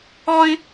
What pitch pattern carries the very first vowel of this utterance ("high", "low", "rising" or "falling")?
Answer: high